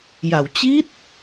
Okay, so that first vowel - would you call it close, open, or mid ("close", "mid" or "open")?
open